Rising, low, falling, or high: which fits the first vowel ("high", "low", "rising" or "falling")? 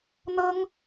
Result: high